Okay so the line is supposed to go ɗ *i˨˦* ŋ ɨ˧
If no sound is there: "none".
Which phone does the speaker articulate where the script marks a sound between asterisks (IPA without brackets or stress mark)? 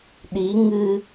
i˨˦